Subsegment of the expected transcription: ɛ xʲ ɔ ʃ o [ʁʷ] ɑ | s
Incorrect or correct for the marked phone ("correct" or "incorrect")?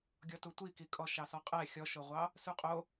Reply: correct